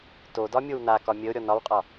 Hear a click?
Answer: no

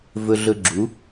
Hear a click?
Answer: yes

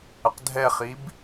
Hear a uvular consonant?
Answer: yes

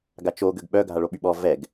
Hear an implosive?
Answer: yes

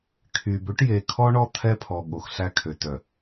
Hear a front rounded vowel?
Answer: yes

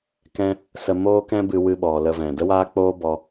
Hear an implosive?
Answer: yes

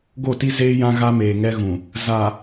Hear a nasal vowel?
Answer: yes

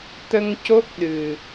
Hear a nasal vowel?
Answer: no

